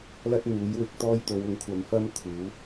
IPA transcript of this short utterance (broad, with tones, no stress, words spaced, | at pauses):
lɐ˥t̚n̪uː˨˥jwɪ˨˥k̚ t̪ɔː˥j t̪o˨˧wʊ˨˥ŋkʷʰɐ˨˧m fɐ˥m kʰuː˨˥